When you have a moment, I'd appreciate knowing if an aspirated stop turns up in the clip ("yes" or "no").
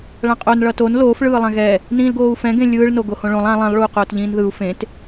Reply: no